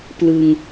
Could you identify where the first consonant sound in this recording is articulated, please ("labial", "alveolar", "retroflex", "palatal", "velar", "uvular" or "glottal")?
labial